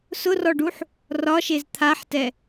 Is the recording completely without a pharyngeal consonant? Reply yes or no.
no